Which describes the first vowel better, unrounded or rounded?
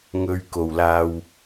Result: rounded